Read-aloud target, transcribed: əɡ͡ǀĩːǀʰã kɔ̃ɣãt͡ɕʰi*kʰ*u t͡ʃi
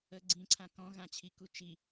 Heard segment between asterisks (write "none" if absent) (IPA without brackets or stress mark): k